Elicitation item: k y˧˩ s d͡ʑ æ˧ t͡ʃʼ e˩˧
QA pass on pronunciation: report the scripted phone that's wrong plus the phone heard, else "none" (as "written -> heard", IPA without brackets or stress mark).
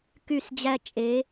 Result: none